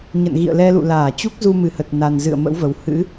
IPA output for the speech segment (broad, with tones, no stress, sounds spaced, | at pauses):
ɲ ə̰˧˨ n ɣ ḭ˧˨ ə̯ l ɛ˧ l ṵ˧˨ l aː˧˩ t͡ɕ u˦˥ k̚ z u˧ m ɨ˧˩ h ə˨˩ t̚ n a˨˩ n z ɨ̰˧˨ ə̯ m ə̰˧˥ w v ə˨˩ w h ɨ̰˧˥